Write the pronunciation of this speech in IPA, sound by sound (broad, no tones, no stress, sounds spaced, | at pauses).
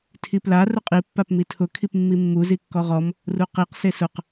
tʰ i p l a r ʊ qʼ i pː a p m i tʰ ʊ kʰ i p mː i mː u z i kː ɔ ʁ ɔ m | r u q i q s e s ʊ q